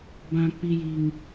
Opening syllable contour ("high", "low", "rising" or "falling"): high